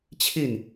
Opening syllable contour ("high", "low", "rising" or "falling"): falling